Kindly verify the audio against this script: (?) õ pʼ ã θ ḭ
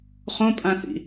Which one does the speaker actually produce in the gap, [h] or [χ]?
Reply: χ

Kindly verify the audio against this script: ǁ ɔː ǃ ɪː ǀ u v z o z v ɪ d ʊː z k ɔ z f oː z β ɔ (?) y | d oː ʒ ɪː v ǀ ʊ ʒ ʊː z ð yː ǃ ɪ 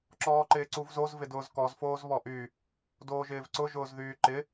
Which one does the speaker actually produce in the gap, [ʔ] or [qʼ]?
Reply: ʔ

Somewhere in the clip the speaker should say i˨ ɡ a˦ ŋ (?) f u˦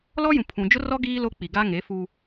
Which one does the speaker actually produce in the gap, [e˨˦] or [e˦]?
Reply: e˨˦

